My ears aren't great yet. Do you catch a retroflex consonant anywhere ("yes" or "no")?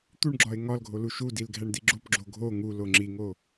yes